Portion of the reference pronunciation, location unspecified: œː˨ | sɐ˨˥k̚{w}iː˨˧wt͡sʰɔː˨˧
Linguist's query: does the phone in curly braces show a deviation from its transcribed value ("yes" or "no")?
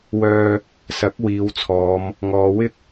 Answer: no